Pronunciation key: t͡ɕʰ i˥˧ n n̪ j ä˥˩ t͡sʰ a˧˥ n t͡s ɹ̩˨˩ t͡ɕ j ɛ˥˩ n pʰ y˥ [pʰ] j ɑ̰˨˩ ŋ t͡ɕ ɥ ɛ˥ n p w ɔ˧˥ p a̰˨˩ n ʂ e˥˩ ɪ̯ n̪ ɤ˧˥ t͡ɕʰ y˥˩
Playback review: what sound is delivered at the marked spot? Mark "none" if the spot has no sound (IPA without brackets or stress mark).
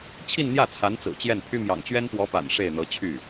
m